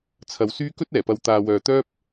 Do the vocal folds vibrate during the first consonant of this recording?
no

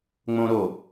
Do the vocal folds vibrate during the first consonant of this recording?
yes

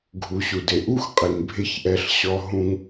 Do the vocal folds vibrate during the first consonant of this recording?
yes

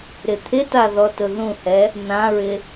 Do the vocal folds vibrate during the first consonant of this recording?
yes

